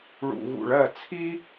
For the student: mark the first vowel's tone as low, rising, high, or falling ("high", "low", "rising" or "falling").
low